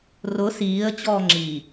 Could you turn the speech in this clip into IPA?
r ʊ s iː ə̯ t͡ɕ ɔː ŋ͡ǁ i

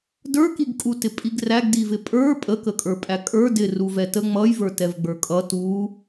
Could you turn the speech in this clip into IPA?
d ə˞ k i ɡ kʼ u t ɪ pʼ i ɡ r æ ɡ d i v ɪ pʼ ə˞ pʼ ə k ə kʼ ə˞ pʼ æ kʼ ə˞ d ɪ r u v ɛ t ə ŋ͡m ʌ j v ə˞ t ɛ v ɡ͡b ə˞ kʼ ʌ t u

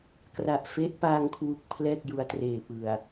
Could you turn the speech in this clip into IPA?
k r a˨˩ ʔ f e˦˥ ʔ p a˧ ŋ kʰ w u˨˩ k̚ pʰ l ɛː˥˩ k̚ j u˧ a̯ t r eː˨˩ p ɯ˨˩ a̯

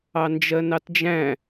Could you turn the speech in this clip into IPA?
ɑ n d͡ʒ ɜ n ɑ t d͡ʒ æ̃

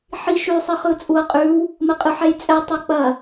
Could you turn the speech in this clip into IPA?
ħ i ʃ ʉ sˤ i χ ɯ t͡sʼ u ɐ̯ qʼ ʉ w | m ə qʼ ɯ ħ ɛ j t͡sʼ ɛ tˤ ɐ k͡p ɐ

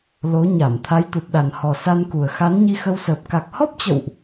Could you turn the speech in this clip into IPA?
l o˨˦ ɲ a˧˩ m t̪ʰ a˨˦ j t̪ u˨˩ t̚ ɗ a˨˩ n h ɔ˨˩ s a˧ n k u˨˩ ə̯ x a˨˦ n ɲ i˧ x ə˧ w s əː˨˩ p̚ k a˨˩ k̚ h ɔ˦˥ p̚ t͡ɕ ə̰˧˨ w ʔ

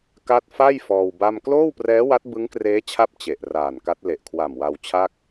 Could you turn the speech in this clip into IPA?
k a˥˩ t̚ f a˥˩ j f ɔː˧ w b a˥˩ m k l oː˥˩ w p r ɛː˦˥ w a˦˥ t̚ b ɯ˦˥ ŋ k r eː˦˥ t͡ɕʰ a˦˥ p̚ t͡ɕ e˨˩ ʔ r aː˨˩ n k a˦˥ t̚ l e˨˩ ʔ kʰ w a˨˩ m w a˧ w t͡ɕʰ a˥˩ k̚

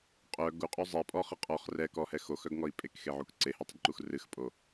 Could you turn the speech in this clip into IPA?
qʼ œ ɡ u qʼ y zˤ ɛ pʼ ɔ χ ɨ qʼ ɔ χ r ɛ k ɔ h ɛ x o x œ ɡ ŋ ɔ i̯ pʼ e k x e ʕ u k ǀ e h o tˤ u d ǃ u x r ɨ x pʼ o

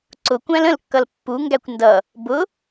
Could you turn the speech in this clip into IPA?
ǀ ʊ kʷ æ̃ l ə̃ l kː ʌ l pː u ŋ ɡ æ kʷ n d ʌ | b ʊ

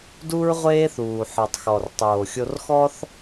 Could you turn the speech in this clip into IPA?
d u˦ ɹ ʁʷ eː˦ θ uː˨ ħ ɔ˨ tˤ x ɔ˨ r tˤ oː˨ xʲ o˧ r x ɔ˦ θ

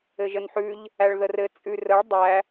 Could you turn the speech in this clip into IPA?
ɘ ʒ ə n ħ ʉ ʎ | æ ɭ ð ə r ɘ t͡sʼ ʉ r ə ɭ dˤ æ

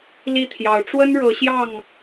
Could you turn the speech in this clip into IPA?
l i˥˩ t̪ʰ j ɑ˧˥ ʊ̯ ʈ͡ʂ w ə˥ n ɻ ɤ˧˥ ɕ j ɑ˥˩ ŋ

